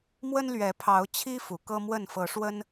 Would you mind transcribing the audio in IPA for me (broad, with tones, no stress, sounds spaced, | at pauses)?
m w ə˦ n l ɥ ɛ˨˦ pʰ ɑ˨˦ ʊ̯ t͡ɕʰ i˦ f u˨˩ k ɤ˦ m w ə˥˨ n f ɤ˨˦ ʂ w ə˦ n